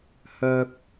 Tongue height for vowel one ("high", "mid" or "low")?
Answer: mid